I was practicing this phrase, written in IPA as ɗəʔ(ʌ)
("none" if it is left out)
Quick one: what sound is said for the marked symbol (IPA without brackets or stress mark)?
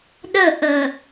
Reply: ə